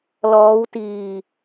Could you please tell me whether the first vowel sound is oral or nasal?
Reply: oral